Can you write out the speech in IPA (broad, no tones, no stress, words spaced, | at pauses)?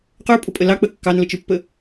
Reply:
qə˞pʼʊpʼə lɑ k͡pə kːɑnlət͡ʃə˞pːə